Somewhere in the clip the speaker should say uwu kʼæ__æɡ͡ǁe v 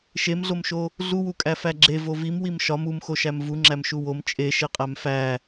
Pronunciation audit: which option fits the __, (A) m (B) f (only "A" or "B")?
B